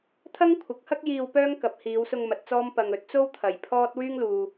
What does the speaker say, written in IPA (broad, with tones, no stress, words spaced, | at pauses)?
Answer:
t̪ʰɐ˥ŋkʷʰɐ˨˥k̚hɐ˥k̚jiː˧w pœː˥ŋ kɐ˨p̚hiː˨˧wsʊ˧ŋ mɐ˧t̚t͡sɔː˥m pɐ˧ŋɵ˨˥t̚ t͡so˥w t̪ʰɐ˨j pʰɔː˥t̚ wyː˥ŋluː˧